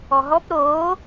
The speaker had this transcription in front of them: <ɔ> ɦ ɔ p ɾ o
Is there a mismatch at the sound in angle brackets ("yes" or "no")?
no